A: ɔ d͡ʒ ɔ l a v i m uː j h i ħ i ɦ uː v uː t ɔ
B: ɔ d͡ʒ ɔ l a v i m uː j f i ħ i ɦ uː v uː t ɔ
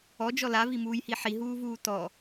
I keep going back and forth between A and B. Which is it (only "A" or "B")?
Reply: A